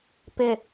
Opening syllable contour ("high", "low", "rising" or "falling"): low